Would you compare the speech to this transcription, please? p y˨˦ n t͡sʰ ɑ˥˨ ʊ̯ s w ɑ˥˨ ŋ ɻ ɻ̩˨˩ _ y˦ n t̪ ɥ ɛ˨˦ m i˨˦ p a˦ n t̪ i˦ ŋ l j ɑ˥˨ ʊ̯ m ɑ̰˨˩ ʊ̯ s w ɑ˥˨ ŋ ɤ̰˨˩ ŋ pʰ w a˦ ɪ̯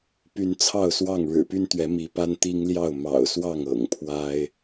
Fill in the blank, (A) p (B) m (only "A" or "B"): A